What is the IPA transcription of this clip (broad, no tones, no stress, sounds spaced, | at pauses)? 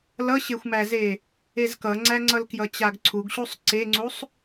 l ʌ ɕ e xʷ m æ z e | e z k ʌ ŋ͡ǀ æ ŋ͡ǀ ʌ l k j ʌ t͡ɕ a ɡ ǀʰ u ɡ ɕ u sˤ ǀ e ŋ͡ǀ u sˤ